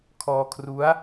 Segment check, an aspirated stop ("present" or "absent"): present